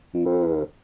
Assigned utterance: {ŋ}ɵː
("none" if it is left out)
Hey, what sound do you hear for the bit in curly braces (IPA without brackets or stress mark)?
ŋ